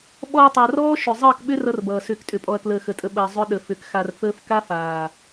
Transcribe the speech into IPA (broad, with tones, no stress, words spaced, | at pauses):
ɓɔ˧ɐ̯tˤa˨rɔː˦ ʃʏ˨zˤəː˦˨kɓʏ˦ rʌ˦rbʌː˨ sʏː˨ktʼʏ˨pʼɔ˨ɐ̯kləː˨ xə˨tʼə˧ ɓəː˨ zˤʏ˦ɗə˨fʏ˨˦kxa˧r fəː˧fka˦faː˨